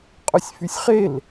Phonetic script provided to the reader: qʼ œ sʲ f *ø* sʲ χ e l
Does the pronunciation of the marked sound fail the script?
yes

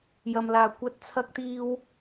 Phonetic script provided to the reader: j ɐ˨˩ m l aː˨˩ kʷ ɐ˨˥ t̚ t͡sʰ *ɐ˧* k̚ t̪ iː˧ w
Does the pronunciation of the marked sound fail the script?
no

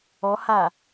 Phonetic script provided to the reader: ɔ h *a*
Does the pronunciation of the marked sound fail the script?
no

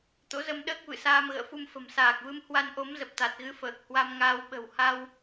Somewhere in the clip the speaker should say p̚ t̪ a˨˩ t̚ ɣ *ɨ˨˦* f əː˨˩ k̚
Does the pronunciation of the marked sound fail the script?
no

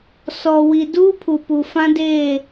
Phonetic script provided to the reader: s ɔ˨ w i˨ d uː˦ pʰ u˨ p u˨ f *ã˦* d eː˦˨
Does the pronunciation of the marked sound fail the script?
no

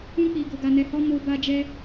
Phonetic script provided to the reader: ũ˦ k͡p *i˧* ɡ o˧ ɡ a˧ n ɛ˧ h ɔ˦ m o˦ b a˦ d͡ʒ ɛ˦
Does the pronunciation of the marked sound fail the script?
no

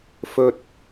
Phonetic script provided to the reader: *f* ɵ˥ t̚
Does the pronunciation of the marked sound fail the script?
no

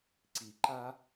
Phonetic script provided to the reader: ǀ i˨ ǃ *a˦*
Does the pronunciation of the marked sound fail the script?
no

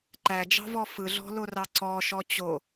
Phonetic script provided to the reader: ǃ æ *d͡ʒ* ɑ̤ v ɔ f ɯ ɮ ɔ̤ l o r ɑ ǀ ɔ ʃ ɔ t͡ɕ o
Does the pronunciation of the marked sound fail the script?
no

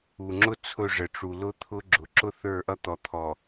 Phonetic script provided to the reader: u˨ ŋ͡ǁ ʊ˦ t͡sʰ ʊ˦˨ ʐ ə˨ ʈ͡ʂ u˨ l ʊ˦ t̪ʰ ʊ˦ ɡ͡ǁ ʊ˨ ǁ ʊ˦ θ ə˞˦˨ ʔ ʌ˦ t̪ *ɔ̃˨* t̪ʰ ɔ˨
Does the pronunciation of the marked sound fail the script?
yes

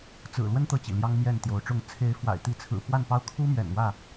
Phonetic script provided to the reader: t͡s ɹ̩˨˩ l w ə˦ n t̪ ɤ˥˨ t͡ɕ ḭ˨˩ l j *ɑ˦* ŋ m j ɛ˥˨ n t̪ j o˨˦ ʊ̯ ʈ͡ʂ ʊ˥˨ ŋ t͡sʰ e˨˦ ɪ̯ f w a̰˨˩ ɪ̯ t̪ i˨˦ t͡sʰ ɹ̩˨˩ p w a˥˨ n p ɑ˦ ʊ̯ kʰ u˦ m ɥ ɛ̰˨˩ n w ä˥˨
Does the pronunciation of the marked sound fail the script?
no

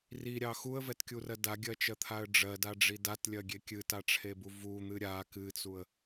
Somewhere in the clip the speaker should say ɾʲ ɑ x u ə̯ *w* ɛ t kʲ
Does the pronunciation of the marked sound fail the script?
yes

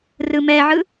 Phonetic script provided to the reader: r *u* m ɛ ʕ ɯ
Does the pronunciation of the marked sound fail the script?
yes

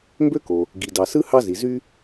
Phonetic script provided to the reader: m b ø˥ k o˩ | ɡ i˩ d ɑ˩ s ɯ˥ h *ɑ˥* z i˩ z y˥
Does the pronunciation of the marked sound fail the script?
no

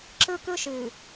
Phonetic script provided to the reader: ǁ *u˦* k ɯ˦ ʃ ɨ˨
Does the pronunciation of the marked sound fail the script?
yes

